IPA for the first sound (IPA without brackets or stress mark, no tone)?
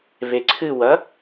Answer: β